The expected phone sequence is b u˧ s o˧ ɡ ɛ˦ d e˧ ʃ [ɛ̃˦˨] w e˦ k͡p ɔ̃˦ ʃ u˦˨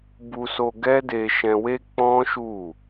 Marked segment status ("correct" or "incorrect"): incorrect